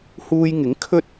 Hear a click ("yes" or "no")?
no